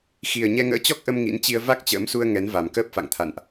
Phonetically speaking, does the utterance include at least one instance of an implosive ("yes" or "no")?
no